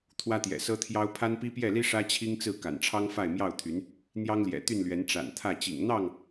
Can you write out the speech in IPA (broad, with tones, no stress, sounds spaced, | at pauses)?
t̪ʰ w ä˦ t̪ j ɛ̰˨˩ s ɤ˦ t̪ʰ j ɑ˦ ʊ̯ pʰ a˦ n p i˦ p j ɛ˥˨ l i˦ ʂ ä˦ t͡ɕʰ i˦ ŋ t͡s ɹ̩˥˨ k a̰˨˩ n ʈ͡ʂʰ ɑ˦ ŋ f a˥˨ ɪ̯ m j ɑ˥˨ ʊ̯ t̪ʰ y˨˦ n | n̪ j ɑ˦ ŋ l j ɛ̰˨˩ t̪ y˥˨ n l ɥ ɛ˨˦ n ʈ͡ʂ a̰˨˩ n t̪ʰ ä˥˨ t͡ɕ ḭ˨˩ ŋ n̪ ɑ˥˨ ŋ